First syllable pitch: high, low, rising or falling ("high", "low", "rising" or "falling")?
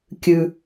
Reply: low